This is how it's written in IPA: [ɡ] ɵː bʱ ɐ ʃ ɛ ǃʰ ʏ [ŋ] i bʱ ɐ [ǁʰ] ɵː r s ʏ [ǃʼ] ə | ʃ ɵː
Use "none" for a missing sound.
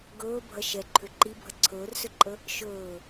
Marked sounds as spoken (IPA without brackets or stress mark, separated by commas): ɡ, ǃ, ǀʰ, ǃʼ